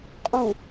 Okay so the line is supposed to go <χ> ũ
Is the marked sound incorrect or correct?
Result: incorrect